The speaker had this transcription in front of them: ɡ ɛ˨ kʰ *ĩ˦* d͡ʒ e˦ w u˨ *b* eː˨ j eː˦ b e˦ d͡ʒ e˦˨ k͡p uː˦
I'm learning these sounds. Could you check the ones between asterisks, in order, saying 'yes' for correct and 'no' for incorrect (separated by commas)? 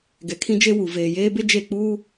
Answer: yes, no